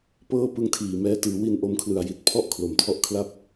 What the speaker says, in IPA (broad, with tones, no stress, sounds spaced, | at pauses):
p ɤː˥˩ p ɯ˦˥ ŋ tʰ iː˨˩ m ɛː˦˥ t ɯː˩˦ w i˧ n ʔ o˦˥ m kʰ l ɯ˨˩ a̯ j i˨˩ t̚ pʰ ɔ˥˩ ʔ kʰ l o˨˩ m tʰ ɔ˥˩ ʔ kʰ l a˥˩ p̚